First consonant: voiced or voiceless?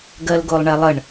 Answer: voiced